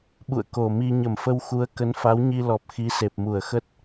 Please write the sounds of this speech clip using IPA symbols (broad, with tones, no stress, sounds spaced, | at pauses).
ɓ ṵ˧˨ ə̯ k o˨˩ m i˧ ɲ ə˧˩ m f ə˧ w x u˨˦ ə̯ k ə˨˦ n f a˨˦ w ɲ i˧ l ɔ˨˩ p̚ x i˨˦ s e˨˩ p̚ m u˧˩ ə̯ x ə˦˥ t̚